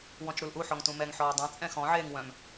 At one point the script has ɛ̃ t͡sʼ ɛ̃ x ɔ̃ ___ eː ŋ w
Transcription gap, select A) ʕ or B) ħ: A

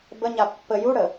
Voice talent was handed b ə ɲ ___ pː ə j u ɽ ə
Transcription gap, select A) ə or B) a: B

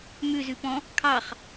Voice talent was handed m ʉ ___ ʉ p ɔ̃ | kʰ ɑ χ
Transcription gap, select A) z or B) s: A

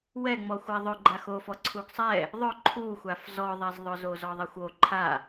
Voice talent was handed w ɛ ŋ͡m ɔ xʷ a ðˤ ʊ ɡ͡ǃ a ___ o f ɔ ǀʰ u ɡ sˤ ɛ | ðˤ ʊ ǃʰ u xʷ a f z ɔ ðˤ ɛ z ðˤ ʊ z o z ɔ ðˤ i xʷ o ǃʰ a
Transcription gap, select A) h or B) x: B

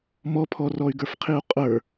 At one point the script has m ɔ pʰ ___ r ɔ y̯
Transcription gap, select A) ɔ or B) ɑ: A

